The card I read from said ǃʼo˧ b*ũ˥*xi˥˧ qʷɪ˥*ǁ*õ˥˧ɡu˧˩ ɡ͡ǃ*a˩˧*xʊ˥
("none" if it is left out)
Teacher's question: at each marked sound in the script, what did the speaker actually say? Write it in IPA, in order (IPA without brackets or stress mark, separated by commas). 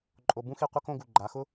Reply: ũ˥, k, a˩˧